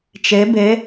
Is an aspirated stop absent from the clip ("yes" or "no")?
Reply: yes